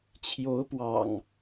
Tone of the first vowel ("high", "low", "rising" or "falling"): rising